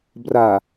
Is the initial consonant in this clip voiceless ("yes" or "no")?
no